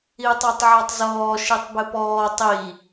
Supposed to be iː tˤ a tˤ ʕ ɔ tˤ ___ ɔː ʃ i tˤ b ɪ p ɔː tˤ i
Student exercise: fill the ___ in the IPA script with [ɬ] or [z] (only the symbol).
z